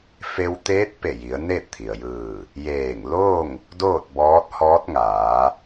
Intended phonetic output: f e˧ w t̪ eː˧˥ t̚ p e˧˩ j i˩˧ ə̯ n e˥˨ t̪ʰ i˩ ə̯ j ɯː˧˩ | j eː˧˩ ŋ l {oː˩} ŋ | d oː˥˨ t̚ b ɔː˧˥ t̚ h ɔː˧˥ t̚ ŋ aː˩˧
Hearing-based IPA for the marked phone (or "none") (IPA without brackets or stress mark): oː˥˨